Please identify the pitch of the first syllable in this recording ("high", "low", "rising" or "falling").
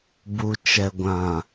low